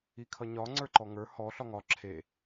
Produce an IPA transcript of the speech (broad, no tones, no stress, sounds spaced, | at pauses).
i kʰ ʌ ɲ ɒ ŋ͡ǀ ə˞ ǃ ɔ ŋ ə˞ h ɔ ɬ ɒ ŋ ɒ ǁʰ e